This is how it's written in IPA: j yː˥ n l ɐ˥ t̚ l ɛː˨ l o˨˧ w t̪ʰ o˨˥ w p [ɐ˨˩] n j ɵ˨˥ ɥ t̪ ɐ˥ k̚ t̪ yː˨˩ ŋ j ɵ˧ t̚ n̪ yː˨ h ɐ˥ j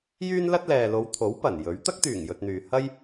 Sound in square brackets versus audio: correct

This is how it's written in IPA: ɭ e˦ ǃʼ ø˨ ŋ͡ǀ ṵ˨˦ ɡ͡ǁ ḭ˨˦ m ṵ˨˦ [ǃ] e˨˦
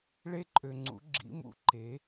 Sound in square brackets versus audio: correct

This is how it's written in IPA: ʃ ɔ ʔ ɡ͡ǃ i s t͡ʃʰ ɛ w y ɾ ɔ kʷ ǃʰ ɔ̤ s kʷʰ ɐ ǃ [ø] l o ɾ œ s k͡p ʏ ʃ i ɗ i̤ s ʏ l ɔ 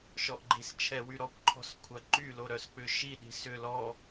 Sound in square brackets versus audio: incorrect: y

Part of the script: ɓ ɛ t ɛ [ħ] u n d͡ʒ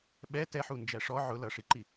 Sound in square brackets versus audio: correct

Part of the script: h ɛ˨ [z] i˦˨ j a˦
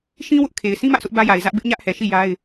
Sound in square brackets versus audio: incorrect: ʃ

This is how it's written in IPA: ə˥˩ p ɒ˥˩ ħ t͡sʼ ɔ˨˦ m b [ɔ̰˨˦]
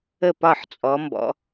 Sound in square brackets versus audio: correct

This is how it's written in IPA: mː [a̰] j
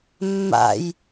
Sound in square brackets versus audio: correct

